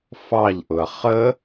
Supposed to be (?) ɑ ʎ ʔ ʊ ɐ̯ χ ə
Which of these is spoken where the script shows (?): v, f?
f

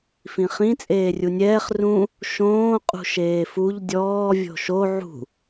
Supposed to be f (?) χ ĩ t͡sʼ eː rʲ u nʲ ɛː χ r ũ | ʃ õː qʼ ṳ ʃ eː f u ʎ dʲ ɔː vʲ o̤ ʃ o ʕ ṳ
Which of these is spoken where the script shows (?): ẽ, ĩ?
ĩ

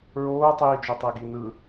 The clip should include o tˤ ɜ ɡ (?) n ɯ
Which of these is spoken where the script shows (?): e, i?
i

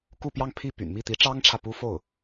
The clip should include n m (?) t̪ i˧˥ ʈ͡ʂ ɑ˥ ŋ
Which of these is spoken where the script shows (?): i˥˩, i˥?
i˥˩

